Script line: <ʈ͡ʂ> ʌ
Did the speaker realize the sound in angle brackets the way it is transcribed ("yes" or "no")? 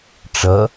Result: yes